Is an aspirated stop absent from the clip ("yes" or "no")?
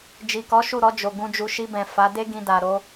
yes